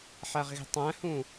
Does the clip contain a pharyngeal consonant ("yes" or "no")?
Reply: yes